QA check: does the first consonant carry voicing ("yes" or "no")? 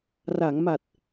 yes